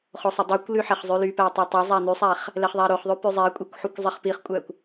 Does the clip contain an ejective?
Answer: yes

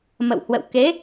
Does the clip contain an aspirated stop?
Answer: no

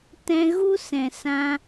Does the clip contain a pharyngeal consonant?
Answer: no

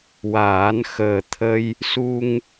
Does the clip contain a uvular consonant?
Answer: no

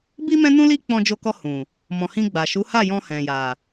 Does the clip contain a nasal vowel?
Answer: yes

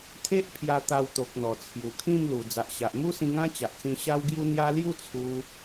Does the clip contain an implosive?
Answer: no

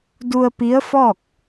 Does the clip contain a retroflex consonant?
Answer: no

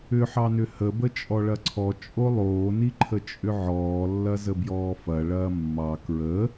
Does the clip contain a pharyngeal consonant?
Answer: yes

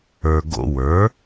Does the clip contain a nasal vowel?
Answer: no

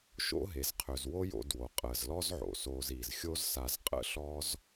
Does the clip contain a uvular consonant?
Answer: yes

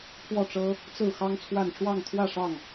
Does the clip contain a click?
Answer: no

